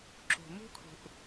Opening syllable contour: low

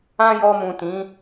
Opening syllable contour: high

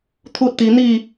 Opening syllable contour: high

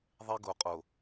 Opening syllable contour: high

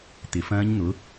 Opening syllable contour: low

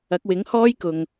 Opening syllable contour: rising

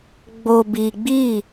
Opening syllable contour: low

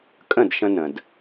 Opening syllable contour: falling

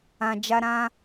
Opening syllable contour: low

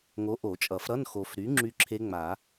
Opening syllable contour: rising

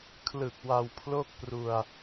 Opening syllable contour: low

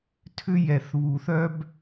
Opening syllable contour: high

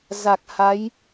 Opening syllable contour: low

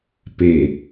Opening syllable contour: low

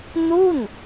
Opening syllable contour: falling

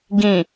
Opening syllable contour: low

